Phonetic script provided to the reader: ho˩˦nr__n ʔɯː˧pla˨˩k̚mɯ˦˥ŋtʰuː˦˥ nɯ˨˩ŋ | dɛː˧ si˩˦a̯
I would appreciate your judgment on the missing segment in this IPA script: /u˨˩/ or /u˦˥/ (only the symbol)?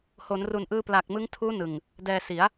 u˨˩